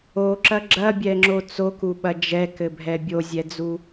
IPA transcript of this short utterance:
oǁɐ ɡ͡ǁɐbʲɛŋ͡ǁo t͡sokuɓɐ d͡ʒɛkɘbʱɛ bʲozʲɛd͡zu

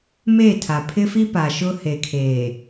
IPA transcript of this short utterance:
meː˦˨tʰa˨ pʰɪ˦fi˦ pa˨ʃʊ˦he˨kʰeː˨

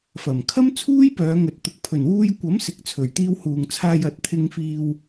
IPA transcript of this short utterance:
fɐ˨˩mkʰɐ˥m t͡sʰuː˥jpœː˨˧ŋɵ˨t̚t̪ʊ˨k̚ pʰɵ˨˩nwuː˧jkʷɐ˨˥m sɪ˨k̚t͡sʰɵ˨˩ɥt̪iː˧w huː˨ŋt͡sʰaː˧jɐ˨˥t̚ t̪ʰɪ˨ŋfiː˨w

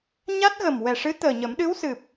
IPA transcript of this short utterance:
ɲa˦˥t̚ɣə˨˩m wɛ˨˩ʂɨ˧˥ t̪əː˨˩ɲə˨˩˦m ɗɨ˧˥wsɨ˨˩p̚

